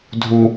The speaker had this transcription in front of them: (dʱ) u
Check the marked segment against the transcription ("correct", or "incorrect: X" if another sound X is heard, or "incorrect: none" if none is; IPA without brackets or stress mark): correct